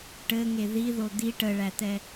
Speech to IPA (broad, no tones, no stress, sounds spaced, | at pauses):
ʈ ɘ ŋ e ð i ð o d̪ i ʈ ə ɭ æ t̪ ɛ